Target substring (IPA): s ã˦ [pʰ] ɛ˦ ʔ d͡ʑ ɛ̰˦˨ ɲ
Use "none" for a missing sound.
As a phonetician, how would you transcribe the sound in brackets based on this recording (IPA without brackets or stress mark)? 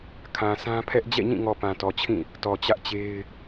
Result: pʰ